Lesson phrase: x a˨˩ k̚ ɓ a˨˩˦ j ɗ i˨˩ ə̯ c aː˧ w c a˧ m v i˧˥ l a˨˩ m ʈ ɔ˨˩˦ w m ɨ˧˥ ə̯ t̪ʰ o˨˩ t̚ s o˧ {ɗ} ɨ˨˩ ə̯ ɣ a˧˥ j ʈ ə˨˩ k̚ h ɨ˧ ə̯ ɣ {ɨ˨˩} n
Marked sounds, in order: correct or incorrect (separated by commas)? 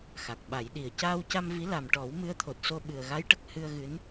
incorrect, incorrect